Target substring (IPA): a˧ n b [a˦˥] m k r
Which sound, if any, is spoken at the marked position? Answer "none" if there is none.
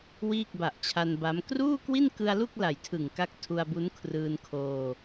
a˦˥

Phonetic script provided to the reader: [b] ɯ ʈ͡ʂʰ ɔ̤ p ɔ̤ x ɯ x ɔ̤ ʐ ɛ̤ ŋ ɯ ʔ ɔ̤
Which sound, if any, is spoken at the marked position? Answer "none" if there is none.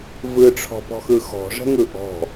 v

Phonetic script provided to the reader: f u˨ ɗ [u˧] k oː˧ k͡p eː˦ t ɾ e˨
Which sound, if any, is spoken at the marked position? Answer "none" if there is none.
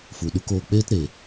u˧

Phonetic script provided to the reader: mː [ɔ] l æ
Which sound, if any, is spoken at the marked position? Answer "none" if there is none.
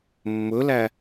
ɵ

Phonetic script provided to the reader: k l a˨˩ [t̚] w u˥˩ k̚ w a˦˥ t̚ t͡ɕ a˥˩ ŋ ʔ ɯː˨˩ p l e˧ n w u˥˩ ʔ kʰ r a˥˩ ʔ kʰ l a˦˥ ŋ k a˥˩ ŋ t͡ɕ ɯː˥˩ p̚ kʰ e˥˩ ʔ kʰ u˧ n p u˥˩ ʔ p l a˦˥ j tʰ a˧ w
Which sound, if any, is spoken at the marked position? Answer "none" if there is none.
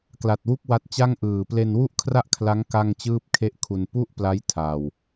t̚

